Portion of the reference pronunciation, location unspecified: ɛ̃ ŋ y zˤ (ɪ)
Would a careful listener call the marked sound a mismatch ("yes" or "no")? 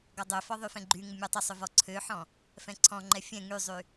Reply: yes